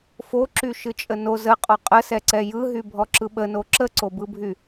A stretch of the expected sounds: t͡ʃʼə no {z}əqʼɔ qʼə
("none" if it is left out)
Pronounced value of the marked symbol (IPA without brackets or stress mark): z